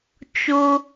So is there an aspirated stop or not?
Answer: no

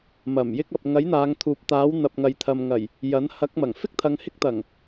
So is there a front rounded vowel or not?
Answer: no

